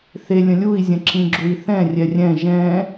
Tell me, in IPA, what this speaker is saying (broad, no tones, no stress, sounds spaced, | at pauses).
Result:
θ e lʲ ə̃ lʲ u i̯ zʲ ə̃ ǁ ĩ ɡ͡ǁ u i̯ θ ɛ̃ rʲ ɛ rʲ ɛ̃ ʒ ɛ̃